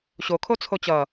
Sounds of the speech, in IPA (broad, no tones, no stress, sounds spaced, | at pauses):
ɕ o kʰ o t͡sʰ o t͡ɕ ʌ